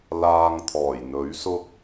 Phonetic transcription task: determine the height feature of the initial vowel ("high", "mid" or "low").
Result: low